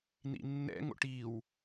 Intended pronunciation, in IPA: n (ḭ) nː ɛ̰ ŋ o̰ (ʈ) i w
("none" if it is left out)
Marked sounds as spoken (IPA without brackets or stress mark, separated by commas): ḭ, ʈ